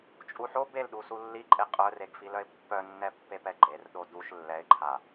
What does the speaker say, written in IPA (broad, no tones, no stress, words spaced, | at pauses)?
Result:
t͡ʃʼuħo belɗu sulːiǃʼe qʼœreɡfilœɪ̯ pːœnːɛ pːepɛɡ͡ǃer ɗoduʃ lːɛɪ̯ǃʰa